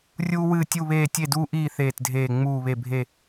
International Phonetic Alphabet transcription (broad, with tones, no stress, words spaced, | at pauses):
rʲuː˦wɨː˦˨tʲu˦˨βeː˦˨ tʲe˦˨duː˦ʔiː˦˨ θeː˦˨tdʱeː˦˨ ŋ͡muː˦˨βe˦˨bʱe˦˨